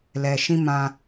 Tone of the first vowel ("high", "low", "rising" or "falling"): low